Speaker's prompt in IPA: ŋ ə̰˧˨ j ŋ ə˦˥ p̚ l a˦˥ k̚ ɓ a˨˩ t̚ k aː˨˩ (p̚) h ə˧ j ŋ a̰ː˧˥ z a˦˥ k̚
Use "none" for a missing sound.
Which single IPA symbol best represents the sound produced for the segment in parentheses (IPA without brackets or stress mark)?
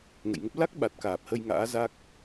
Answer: p̚